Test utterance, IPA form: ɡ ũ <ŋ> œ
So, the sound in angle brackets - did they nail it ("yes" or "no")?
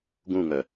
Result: yes